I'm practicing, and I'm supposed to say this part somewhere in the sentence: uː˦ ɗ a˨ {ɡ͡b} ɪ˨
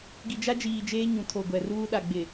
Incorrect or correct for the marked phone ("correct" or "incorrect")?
correct